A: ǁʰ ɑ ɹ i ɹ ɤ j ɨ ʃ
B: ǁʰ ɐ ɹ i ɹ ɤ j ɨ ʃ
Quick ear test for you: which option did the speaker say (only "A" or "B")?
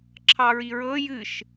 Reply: A